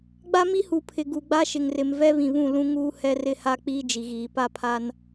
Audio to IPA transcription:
ɡ͡b a˦ m i˦ h u˨ pʰ ɪ˨ ɡ u˨ ɡ͡b a˦ ʃ ɪ˨ ŋ r ɪ˨ m v ɛ˦ β ĩ˨ β ũ˦˨ l ũ˦ ŋ uː˦ h ɛ˦ r ɪ˦ h a˦ k͡p iː˦ d͡ʒ i˨ ɣ iː˨ p a˦ pʰ a˦ n

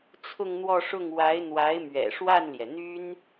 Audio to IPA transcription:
t͡sʰ ʊ˥˧ ŋ n̪ w ɔ˥˧ ʂ ʊ˥˩ ŋ w a˧˥ ɪ̯ n̪ w a˧˥ ɪ̯ m ɥ ɛ̰˨˩ ʂ w a˥˩ n l j ɛ˩ n̪ y˥ n

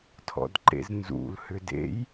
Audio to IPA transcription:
tʰ ɔ̰ d ǃ ḛ z n z ṵ l h ʏ d ḛ j

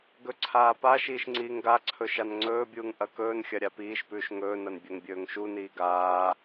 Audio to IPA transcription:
ɡ ɵ ǀʰ aː p a ʃ iː ʃ ŋ͡ǀ iː ŋ ɡ a ǀʰ ɵ ʃ a n ŋ͡ǀ ɵː bʲ uː ŋ ʔ ɐ k ɵː n xʲ ɐ ɾʲ a p iː ʃ p ʉː ʃ ŋ ɵː n ɐ n bʲ ɵ ŋ bʲ ɵː ŋ ʃ u n iː ɡ aː

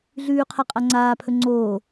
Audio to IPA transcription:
ɮ ʉː qʰ a qʼ a ŋ͡ǀ aː pʰ ɵ ŋ͡ǀ oː

